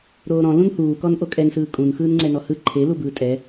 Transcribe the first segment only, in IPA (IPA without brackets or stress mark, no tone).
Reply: ɾ